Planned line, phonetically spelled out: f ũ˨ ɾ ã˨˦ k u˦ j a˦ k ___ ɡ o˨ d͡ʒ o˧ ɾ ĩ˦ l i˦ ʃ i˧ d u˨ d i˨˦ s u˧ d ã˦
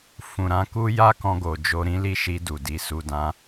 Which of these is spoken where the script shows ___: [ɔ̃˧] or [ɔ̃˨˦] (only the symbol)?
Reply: ɔ̃˧